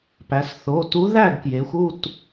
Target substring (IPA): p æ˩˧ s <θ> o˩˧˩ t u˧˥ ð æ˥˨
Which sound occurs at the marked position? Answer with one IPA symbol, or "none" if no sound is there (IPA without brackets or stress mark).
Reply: θ